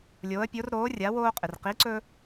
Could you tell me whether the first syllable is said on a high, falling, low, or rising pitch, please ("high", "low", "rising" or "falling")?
rising